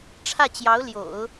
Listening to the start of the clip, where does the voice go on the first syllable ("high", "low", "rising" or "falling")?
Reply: falling